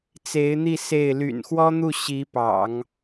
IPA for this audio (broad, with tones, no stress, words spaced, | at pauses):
t͡se˧˥ɪ̯n̪i˥˧ se˥˩ɪ̯ ly̰˨˩nxwɔ˥n̪u˥˩ ɕi˧˥pɑ̰˨˩˦ŋ